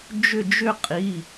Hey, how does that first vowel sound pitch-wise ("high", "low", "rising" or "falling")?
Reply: falling